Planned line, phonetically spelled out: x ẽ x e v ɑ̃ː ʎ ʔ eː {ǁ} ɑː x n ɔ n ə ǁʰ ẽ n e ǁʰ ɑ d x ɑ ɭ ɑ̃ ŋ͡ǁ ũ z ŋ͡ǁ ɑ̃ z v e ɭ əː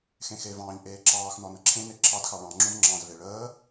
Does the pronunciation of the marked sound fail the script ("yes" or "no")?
no